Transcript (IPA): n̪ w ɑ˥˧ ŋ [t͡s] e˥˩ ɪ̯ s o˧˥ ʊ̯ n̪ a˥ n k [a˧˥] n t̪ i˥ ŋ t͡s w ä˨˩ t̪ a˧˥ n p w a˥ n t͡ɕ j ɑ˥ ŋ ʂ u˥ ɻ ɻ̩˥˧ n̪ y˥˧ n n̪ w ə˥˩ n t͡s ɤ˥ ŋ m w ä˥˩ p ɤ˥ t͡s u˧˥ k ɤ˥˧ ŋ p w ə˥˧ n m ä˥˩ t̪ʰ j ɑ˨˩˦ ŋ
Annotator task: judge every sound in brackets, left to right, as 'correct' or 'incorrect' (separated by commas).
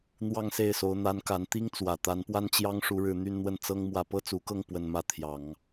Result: incorrect, correct